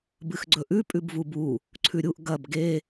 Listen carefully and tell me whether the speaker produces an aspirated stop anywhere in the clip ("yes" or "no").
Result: yes